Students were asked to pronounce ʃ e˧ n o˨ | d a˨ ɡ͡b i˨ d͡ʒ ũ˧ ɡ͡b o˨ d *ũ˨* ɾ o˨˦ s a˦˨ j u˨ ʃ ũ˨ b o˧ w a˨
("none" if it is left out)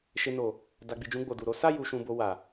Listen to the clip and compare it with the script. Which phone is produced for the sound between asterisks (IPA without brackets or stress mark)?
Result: u˨